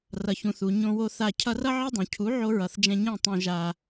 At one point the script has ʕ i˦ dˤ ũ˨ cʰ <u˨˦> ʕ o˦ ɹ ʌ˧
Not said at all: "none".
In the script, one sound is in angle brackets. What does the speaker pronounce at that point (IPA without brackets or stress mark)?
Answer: u˨˦